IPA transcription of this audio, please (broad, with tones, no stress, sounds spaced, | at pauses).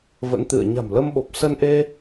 v ə̰˧˥ n t̪ ɨ̰˧˨ ə̯ ɲ a̤˨˩ m l ə˧ m ɓ o˨˩ p̚ s ə˧ n ʔ e˧